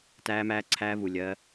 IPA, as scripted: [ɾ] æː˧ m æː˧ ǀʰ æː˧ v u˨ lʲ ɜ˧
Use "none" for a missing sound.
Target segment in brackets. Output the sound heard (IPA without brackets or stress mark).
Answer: t